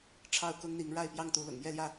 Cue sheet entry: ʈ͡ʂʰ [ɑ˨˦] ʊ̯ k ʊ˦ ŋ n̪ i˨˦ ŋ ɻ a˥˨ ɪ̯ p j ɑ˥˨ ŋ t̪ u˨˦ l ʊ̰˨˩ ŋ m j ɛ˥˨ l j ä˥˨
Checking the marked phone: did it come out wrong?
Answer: yes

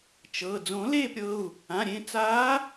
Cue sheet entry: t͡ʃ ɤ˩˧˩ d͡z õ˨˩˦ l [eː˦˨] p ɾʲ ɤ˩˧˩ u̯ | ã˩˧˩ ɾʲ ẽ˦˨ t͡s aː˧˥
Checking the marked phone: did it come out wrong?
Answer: no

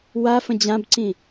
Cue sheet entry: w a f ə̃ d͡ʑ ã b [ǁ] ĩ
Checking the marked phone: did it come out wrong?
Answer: yes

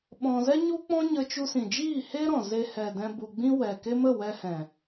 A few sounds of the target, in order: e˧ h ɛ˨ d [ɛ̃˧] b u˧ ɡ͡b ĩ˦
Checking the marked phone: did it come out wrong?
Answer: no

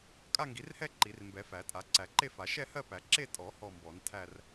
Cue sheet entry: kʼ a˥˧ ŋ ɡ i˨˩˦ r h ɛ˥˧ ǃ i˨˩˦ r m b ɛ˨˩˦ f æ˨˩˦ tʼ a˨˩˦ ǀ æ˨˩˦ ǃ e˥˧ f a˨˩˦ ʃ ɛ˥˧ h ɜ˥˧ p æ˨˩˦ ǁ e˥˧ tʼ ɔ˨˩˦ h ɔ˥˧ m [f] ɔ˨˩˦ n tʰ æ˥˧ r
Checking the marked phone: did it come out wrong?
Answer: yes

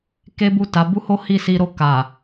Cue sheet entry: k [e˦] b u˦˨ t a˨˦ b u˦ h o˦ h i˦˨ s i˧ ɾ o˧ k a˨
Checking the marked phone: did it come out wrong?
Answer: no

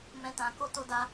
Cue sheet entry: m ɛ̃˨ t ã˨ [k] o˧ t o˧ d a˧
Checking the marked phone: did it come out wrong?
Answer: no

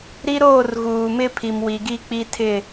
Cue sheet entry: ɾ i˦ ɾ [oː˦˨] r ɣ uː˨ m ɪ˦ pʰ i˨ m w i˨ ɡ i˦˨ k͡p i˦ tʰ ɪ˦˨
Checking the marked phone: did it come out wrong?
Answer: no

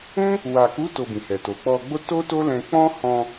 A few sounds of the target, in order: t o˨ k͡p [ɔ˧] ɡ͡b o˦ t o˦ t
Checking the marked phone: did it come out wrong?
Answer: no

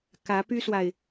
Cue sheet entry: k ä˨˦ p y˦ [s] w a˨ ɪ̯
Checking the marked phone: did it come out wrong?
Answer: no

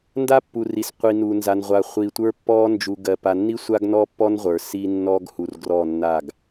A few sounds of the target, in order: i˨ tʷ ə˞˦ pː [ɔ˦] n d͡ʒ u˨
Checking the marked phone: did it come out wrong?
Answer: no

